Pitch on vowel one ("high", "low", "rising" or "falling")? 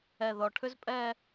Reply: low